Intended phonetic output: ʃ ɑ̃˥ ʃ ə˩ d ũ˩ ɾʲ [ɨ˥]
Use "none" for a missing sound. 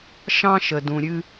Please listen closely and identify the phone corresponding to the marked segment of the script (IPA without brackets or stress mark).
ɨ˥